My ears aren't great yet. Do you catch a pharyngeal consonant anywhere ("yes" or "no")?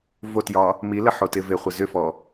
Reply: yes